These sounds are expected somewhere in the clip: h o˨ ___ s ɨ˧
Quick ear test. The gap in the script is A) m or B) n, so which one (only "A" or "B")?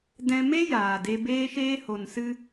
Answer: B